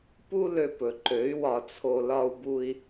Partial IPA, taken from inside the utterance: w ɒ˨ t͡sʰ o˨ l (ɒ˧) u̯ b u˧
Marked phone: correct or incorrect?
correct